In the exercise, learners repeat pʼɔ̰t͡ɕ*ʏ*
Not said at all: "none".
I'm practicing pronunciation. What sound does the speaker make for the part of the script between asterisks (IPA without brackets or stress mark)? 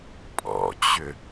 ʏ